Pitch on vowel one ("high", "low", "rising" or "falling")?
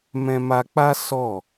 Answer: high